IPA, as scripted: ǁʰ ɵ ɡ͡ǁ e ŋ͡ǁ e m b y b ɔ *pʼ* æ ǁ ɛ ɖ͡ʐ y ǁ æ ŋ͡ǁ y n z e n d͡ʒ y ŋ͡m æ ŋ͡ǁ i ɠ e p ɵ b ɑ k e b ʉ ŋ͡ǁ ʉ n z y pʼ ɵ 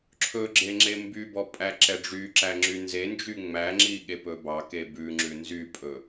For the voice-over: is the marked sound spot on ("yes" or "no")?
yes